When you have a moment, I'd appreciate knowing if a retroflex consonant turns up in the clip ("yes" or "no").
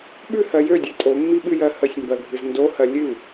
no